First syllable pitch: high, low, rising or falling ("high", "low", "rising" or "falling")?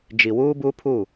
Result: low